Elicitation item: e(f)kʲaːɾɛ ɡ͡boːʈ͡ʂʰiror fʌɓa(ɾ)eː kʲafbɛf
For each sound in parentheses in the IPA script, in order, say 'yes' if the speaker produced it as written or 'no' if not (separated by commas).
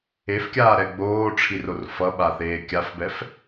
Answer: yes, no